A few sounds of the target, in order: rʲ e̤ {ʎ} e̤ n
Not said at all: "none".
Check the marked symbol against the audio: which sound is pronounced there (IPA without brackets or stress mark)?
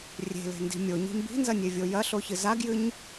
l